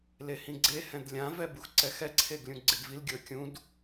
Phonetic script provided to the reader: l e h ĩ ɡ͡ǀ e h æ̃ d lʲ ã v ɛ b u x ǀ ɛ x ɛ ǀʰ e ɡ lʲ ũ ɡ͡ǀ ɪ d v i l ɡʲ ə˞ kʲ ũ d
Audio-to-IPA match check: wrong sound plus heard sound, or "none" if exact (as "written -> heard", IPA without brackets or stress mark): æ̃ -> ɛ̃